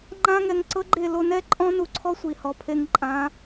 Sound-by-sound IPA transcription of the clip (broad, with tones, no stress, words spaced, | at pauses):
ŋ͡ǃã˦ŋɛ˧ŋ ǀɤ˦ɡ͡ǃe˦˨ lo˧nɛ˦ ǃʼɔ̃˦nu˧ǀʰɔ˦ sʷi˨hɔ˨pʰe˧ŋǃʼã˨˦